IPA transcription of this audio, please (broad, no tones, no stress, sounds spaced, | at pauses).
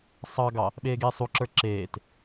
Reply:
sˤ ɑ ɡ ɑ | ɓ eː ɡ eː sˤ u ǁ ə˞ ǁ eː t